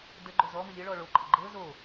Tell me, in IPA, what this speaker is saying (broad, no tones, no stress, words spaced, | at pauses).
də ɡ͡ǃozɔ məlʲɤ ɭɔɭo ǃʼəɡ͡ǃɤ zo